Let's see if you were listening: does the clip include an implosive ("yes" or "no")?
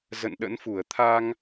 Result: yes